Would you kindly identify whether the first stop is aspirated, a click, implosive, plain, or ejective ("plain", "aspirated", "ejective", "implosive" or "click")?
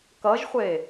plain